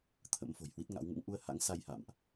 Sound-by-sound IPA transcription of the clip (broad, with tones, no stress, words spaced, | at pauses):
t̪ʰə̰˧˥mfo̤˨˩jhwi˦˥t̚ŋa̰˧˥w ŋṵ˧˥ŋʔu˧ə̯ha̰˧˥ŋsa˧j ha̰˧˨mʔ